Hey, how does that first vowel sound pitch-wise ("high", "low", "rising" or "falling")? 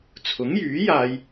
rising